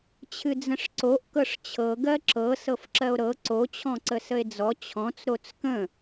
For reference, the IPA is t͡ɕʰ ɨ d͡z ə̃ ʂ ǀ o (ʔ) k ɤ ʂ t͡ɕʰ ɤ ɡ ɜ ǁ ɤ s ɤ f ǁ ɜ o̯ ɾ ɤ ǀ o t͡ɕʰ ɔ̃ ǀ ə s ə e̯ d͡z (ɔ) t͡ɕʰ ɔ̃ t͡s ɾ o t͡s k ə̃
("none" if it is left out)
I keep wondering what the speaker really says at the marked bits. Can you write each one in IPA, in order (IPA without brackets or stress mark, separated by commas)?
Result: ʔ, ɔ